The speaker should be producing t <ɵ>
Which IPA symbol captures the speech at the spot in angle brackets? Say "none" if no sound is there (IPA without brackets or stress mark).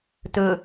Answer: ɵ